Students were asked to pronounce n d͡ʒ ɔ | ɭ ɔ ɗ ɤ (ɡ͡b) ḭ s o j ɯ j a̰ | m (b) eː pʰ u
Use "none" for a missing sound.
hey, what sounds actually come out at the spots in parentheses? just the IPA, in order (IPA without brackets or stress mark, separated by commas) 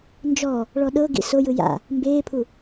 ɡ, b